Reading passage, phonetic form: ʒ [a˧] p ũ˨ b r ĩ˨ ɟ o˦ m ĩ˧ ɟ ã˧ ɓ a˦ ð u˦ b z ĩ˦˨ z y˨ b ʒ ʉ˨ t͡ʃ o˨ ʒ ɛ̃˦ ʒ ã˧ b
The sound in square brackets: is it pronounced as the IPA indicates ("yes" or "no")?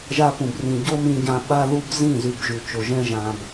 yes